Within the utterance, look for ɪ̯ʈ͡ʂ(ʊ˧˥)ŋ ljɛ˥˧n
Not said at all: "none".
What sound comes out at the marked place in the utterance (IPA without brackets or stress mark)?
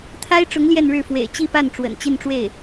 ʊ˧˥